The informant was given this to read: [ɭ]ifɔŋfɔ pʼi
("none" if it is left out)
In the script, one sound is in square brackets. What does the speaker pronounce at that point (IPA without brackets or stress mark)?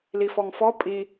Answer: l